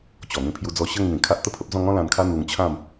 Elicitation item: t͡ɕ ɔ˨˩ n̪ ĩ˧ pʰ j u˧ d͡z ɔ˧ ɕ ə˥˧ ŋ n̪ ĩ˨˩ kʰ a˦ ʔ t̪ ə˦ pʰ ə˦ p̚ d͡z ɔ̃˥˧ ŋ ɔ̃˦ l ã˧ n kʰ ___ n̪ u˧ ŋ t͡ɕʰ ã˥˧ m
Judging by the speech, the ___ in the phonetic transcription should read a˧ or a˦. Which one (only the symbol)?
a˦